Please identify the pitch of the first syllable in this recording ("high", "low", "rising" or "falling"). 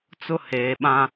high